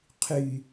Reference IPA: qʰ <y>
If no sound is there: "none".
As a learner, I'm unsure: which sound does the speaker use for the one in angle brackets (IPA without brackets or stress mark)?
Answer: y